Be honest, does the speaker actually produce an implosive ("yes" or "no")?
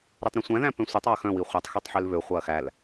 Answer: no